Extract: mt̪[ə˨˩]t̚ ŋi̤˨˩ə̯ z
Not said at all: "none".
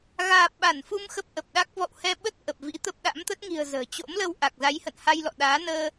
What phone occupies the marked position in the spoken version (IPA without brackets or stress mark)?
ə˦˥